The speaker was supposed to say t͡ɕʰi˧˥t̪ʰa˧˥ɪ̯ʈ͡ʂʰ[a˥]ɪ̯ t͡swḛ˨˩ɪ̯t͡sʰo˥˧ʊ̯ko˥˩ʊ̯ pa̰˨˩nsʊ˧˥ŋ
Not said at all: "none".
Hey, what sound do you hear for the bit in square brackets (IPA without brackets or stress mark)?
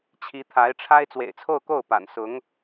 a˥